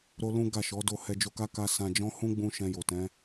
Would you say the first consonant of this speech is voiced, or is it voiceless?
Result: voiced